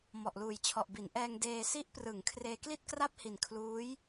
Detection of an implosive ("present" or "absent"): absent